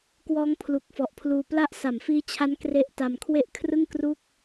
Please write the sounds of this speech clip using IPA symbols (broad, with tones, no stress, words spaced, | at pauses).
kwɔː˦˥ŋpʰlu˨˩k̚fɔ˨˩ʔpʰluː˧ pla˦˥ʔsa˨˩mfiː˦˥t͡ɕʰa˦˥n kre˦˥ʔta˧m kʰwe˥˩ʔ kʰrɯ˥˩ŋkru˥˩k̚